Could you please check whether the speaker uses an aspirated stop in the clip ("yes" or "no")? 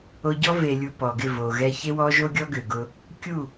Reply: no